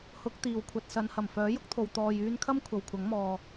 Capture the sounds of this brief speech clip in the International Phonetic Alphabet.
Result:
h ʊ˨˥ k̚ t̪ iː˨˩ w kʷʰ ɐ˨ t̚ s ɐ˨˧ n h ɐ˨˩ m f œː˨˥ j ʊ˥ k̚ t̪ʰ o˨ w t̪ ɔː˧ j yː˧ n kʰ ɐ˥ m kʷʰ ɐ˨ w kʷʰ ɐ˨˥ ŋ m ɔː˨

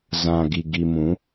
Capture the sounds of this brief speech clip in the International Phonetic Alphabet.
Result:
z ã˨ ɡ i˨ ɡ i˨ m ũ˨˦

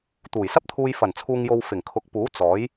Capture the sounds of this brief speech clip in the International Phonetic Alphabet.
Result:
t̪ uː˨˩ j s ɐ˥ p̚ t̪ʰ uː˧ j f ɐ˨˩ n t͡sʰ uː˨ ŋ j o˨ w f ɪ˨˩ ŋ kʰ ʊ˨˥ k̚ p uː˨˥ t͡s ɔː˨˥ j

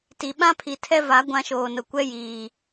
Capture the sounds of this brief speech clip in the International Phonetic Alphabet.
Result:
t i˨ ɓ ã˦ pʰ i˨ tʰ ɛ˦ v a˨˦ ɡʷ ã˦ ʃ oː˨ n ʊ˨ kʷ ɛ˦ j iː˨

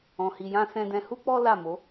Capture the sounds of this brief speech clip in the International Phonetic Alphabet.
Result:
ɔ̃˨ h i˨ j ã˧ s ɛ̃˧ d ɛ̃˧ h u˦ k͡p ɔ˦ l a˦˨ m o˨˦

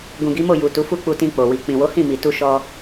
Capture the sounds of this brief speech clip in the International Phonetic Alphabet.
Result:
ɡ ũ˨ ɡ i˨˦ m o˦˨ j u˨ t u˨˦ f u˦ k͡p u˧ t ĩ˧ k͡p o˨ w i˨ k͡p ĩ˨ w o˨˦ h ĩ˦˨ m i˨ t u˧ ʃ ɔ˧

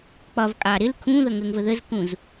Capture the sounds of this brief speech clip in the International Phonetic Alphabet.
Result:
k͡p ɒ v kʼ ɑː ɾ ɪ l kʰ ũː ð ʌ ŋ əː ŋ v ə ð ə z k ũ z

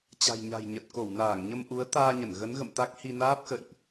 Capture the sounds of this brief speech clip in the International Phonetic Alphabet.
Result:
t͡ɕ a̤˨˩ j ɲ a̤˨˩ j ɲ ə˨˩ t̚ k o˧˩ w n aː˧˩ ŋ ɲ ə˧ m ʔ u˨˦ ə̯ t̪ aː˧ ɲ ə˧˩ n ɣ ə˨˦ n ɣ ə̰˧˨ m t̪ a˦˥ k̚ h i˧ n aː˦˥ p̚ x ə̰˧˨ j ʔ

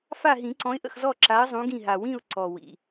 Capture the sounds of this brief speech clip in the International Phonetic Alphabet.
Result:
f a˦˨ ɦ ĩ˨˩˦ ǀ ɔ̃˨˦ ɪ̯ ʔ ə̰˦˨ x z ɔ˦˨ ǁ a˨˦ ə̯ zˤ ũ˨˦ ɡ ĩ˦˨ ɦ a˨˩ w ĩ˦˨ ʊ̯ ǀ ɔ˨˩ w ḭ˨˩

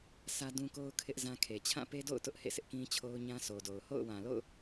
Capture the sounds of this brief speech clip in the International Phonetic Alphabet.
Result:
s ä˦ d ũ˦ k o˦ ʊ̯ kʰ ɪ˦ ʔ z ã˦ kʰ e˨ t͡ɕʰ ã˦˨ p e˦ d o̰˦˨ ʊ̯ t ʊ˦ ʔ h ḛ˦˨ sʰ ɪ˦ ʔ k ĩ˦ t͡ɕʰ o˦ ʊ̯ ɲ ã˦ sʰ o˨ d o˨ ʊ̯ h o̰˦˨ ʊ̯ w ã˨ l o̰˦˨ ʊ̯

